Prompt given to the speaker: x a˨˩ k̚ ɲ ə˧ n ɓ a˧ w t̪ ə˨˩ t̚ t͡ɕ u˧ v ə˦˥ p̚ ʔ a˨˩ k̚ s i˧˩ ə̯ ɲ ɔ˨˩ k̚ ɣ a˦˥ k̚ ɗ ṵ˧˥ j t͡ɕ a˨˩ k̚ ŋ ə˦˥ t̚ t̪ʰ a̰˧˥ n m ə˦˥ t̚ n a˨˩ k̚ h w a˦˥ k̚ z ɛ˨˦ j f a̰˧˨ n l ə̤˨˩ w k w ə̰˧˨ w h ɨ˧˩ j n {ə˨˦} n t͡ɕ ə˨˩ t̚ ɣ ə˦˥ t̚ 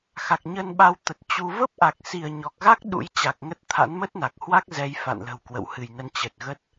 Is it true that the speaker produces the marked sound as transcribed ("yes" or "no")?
no